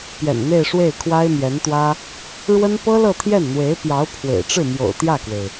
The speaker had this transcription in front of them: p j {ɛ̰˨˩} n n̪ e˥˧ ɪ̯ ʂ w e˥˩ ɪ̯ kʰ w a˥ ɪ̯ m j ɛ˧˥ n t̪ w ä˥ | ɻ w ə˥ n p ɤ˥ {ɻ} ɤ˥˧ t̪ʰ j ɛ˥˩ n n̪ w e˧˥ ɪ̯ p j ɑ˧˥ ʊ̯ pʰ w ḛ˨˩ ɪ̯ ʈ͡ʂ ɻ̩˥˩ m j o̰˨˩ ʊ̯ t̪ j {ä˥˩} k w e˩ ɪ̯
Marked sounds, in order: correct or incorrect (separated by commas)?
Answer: correct, incorrect, correct